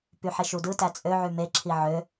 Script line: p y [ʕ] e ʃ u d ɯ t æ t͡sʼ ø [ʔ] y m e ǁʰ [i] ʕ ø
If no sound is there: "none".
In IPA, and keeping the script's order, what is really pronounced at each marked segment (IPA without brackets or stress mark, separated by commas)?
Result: ħ, ʕ, i